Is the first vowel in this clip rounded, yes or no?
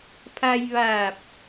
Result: no